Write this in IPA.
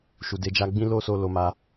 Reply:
ʃu˨de˧d͡ʒa˧ɡ͡bĩ˦ lo˦so˧ lo˧ma˧

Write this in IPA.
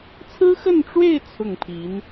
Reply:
t͡sʰɹ̩˥xə˥˧nʈ͡ʂwe˥˧ɪ̯ t͡sʰʊ˥˩ŋpʰi˧˥n

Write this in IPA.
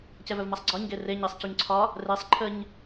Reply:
cɛvœvmasˤɡ͡ǀɒɲ ɡere ɲɛsˤcuɲǀʰɒ | resˤ ǃʰəɲ

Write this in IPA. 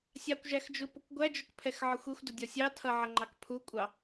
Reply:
sʲɑkʷʒæxd͡ʒupʊkʷ ɡʷæd͡ʒʊkpʰɛxʕɒxʷ ixʷdʊdʲɒ sʲɑtʰʌʕʌŋ͡ǃɑk pʰukʷʼɑ

